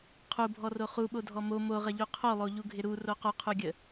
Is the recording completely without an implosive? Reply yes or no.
no